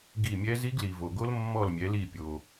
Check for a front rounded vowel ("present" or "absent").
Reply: absent